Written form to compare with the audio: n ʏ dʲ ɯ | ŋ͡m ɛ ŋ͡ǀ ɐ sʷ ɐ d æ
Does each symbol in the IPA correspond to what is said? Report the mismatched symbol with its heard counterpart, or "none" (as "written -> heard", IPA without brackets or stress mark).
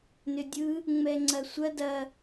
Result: æ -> ɐ